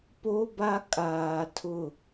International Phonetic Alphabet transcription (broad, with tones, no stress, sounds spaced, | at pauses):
p o˦ b a˦ kʼ aː˨ tʰ ʊ˦˨